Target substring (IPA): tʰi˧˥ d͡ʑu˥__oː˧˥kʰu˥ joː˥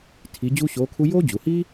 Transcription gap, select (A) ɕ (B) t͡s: A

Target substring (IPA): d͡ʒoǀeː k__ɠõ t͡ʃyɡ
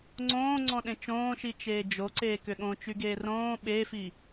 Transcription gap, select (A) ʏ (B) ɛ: A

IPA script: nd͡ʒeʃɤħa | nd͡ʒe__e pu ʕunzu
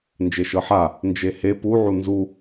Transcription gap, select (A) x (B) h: B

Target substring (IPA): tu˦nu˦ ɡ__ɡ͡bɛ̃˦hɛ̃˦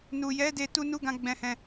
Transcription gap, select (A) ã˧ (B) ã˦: B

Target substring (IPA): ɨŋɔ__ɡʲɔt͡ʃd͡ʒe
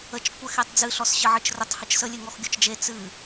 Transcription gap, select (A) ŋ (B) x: B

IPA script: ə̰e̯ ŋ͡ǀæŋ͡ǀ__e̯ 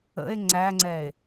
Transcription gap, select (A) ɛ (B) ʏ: A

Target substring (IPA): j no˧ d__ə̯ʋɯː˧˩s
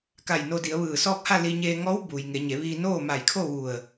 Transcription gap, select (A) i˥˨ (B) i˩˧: B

